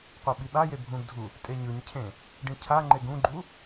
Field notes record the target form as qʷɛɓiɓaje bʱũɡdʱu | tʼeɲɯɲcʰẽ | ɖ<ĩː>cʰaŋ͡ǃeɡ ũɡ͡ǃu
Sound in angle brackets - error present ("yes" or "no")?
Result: yes